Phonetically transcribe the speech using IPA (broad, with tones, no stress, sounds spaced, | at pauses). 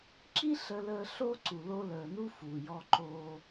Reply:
ǁ i˦ ɬ ə˦ l əː˦ ɬ o˦ ǀ u˨ l o˦ l əː˨ n u˦ f uː˨ j ɔ˦ ǃ o˦